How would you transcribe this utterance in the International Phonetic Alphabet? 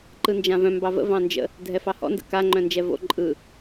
ǃ ɯ n d͡ʒ ã v œ̃ m b ɑ v ə̰ v ɑ̃ n d͡ʒ ə̰ | dʱ ɛ f ɑ h ɔ̰ n d ə̰ k a ŋ͡ǃ œ̃ n d͡ʒ ɛ v o̰ ǃʼ ɯ

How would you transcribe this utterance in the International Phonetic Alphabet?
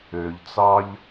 ø ʎ t͡s ɑ ʎ

